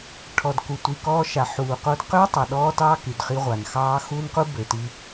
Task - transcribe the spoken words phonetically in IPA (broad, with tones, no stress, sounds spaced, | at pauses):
ʈʰ ɔ˨ d k u˨ tʷ i˨ k ɔː˦ ʃ a˨ ħ uː˨ q o˦ d q ø˦ tˤ a˨ ɗ ɔː˦ t ɑː˦ k y˨ d χ i˦ ʁʷ a˨ n x ɑː˦ x u˦ n q u˦ b ø˨ t i˦